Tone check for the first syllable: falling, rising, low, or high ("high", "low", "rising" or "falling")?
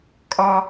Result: high